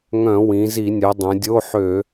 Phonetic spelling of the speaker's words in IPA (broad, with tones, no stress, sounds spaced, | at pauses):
ŋ œ̃˧˩˧ w ĩ˩˧ z i˧˩˧ nʲ œ˩˧ dˤ œ̃˩˧ dʲ o˧˥˧ ħ ø˧˩˧